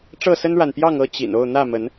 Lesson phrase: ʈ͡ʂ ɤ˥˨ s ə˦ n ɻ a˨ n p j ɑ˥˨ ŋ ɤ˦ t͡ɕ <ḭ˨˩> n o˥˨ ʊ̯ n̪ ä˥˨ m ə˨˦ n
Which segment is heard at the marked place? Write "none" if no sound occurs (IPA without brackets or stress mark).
ḭ˨˩